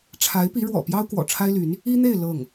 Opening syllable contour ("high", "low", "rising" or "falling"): rising